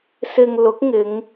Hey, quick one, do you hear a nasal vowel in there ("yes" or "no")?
no